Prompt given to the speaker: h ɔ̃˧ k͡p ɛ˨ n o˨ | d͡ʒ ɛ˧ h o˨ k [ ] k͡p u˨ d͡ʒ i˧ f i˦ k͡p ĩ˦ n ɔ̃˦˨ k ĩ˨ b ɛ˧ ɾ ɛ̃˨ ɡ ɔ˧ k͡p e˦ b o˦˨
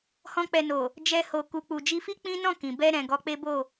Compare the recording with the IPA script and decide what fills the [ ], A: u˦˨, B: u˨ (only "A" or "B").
B